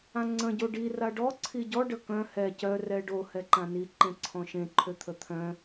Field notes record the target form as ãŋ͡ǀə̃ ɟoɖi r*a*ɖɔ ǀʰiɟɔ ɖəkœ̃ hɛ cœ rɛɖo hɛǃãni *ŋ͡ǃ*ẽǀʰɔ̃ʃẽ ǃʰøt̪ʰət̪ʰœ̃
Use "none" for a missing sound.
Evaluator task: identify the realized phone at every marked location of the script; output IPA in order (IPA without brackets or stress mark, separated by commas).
a, ǃ